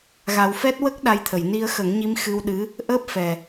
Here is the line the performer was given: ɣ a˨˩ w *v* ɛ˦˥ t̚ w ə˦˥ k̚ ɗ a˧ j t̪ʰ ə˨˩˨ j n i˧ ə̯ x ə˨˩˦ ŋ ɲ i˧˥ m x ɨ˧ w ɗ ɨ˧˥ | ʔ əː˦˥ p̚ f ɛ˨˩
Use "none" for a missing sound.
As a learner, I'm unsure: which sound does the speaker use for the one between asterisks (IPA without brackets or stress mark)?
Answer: f